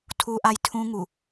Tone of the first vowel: high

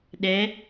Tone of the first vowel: rising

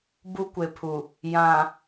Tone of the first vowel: high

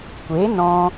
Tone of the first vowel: rising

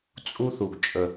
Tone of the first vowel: high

